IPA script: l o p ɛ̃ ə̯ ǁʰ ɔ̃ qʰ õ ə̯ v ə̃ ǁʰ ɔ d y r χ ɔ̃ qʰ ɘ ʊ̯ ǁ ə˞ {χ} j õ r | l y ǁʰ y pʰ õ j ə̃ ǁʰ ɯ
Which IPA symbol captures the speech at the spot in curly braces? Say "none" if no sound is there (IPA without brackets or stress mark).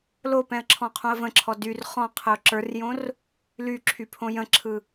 r